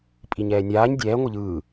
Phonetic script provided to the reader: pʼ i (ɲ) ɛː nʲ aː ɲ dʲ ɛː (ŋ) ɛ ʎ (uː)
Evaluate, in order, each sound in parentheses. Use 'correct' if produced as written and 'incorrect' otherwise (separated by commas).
correct, incorrect, incorrect